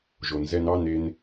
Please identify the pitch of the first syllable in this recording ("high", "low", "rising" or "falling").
low